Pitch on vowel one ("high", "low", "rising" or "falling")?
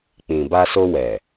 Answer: low